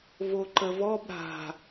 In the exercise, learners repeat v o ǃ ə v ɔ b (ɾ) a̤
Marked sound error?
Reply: no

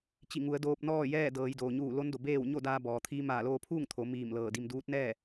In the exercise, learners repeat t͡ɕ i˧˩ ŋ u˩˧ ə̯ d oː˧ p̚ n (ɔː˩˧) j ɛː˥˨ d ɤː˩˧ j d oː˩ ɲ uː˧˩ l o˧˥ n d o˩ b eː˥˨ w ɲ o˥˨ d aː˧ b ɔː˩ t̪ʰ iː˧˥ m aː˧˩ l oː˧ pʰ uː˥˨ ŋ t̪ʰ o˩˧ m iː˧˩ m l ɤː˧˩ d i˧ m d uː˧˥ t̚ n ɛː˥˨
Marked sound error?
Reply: yes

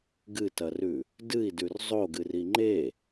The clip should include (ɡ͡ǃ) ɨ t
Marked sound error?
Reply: yes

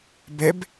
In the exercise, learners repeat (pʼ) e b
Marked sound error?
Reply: yes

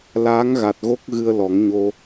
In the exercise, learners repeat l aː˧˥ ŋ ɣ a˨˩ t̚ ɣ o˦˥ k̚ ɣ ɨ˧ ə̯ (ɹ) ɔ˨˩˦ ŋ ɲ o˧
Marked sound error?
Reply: yes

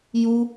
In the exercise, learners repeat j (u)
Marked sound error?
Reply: no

